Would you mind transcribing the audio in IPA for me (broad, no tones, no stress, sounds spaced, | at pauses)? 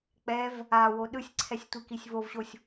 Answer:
k͡p ɛ v | a w o ɗ ɯ sʲ ǀʰ ɛ sʲ tʷ i k i sʲ v o v ɕ o sʲ